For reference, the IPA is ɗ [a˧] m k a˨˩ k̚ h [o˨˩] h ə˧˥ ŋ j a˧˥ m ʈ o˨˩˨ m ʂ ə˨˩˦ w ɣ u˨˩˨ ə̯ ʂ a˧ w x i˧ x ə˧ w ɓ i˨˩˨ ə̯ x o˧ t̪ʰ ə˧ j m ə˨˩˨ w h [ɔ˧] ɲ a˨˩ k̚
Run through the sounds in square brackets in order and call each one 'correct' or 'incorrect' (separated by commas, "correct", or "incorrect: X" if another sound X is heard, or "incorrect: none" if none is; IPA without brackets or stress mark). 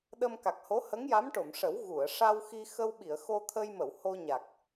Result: incorrect: ə˧, incorrect: o˧˥, incorrect: o˧